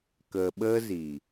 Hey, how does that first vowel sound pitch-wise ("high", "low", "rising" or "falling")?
low